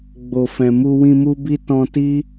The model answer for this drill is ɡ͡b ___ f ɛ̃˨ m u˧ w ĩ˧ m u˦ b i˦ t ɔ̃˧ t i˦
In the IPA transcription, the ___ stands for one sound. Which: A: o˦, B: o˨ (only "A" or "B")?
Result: B